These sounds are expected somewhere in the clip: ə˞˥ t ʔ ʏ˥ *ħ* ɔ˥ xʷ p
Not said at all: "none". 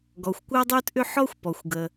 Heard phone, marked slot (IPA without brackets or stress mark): ħ